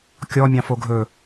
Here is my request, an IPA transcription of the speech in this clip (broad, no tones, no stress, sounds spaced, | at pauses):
kʲ ɔ mʲ ɑ̃ f o ɡʱ ɵ